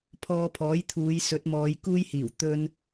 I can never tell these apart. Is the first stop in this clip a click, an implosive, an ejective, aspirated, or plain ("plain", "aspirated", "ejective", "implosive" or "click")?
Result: aspirated